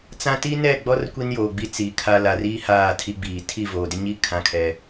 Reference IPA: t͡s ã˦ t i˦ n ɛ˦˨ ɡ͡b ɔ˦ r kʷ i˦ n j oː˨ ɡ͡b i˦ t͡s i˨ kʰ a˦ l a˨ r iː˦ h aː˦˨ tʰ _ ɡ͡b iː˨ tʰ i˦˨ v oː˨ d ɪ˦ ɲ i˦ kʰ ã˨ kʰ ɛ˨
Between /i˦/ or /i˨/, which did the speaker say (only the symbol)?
i˦